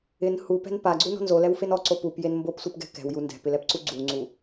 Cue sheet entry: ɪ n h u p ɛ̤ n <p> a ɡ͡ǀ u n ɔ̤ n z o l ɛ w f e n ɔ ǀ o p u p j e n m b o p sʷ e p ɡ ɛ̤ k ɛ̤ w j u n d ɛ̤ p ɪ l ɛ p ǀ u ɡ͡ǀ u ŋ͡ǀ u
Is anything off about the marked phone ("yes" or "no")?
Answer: no